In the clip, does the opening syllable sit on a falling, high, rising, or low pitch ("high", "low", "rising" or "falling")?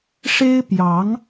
high